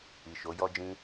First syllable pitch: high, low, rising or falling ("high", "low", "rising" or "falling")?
low